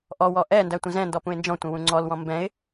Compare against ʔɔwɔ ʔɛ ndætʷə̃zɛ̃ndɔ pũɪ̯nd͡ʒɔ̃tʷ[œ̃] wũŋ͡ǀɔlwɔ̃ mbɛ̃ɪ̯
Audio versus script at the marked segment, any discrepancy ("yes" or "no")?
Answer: yes